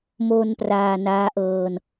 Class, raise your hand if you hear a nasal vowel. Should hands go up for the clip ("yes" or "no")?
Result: no